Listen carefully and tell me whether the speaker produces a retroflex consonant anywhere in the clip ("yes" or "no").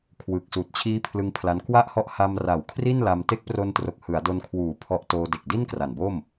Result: no